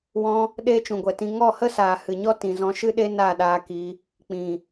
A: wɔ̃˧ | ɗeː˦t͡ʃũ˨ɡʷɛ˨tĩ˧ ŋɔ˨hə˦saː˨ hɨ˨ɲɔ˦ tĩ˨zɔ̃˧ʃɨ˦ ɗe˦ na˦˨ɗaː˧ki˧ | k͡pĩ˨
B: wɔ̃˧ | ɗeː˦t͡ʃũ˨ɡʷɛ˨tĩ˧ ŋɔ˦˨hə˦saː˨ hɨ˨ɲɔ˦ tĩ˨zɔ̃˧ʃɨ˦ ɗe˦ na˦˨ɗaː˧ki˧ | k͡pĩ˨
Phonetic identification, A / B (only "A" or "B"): B